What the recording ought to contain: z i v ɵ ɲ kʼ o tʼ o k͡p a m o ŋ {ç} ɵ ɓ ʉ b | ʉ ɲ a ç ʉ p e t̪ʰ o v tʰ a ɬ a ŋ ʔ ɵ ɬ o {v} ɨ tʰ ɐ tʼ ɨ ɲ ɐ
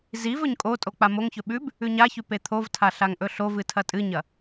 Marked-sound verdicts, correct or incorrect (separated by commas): correct, correct